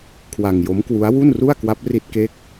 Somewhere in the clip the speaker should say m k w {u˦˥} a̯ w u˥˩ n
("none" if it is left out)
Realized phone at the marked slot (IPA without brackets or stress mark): u˦˥